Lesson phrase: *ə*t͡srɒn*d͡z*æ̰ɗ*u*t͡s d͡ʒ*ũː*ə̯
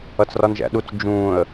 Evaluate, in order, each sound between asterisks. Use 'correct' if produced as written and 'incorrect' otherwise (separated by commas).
incorrect, incorrect, correct, correct